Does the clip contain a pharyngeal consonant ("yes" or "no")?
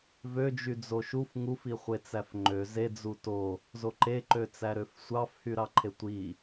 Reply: no